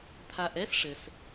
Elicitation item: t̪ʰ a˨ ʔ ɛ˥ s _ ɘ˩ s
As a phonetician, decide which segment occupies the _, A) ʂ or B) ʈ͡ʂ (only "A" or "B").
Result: A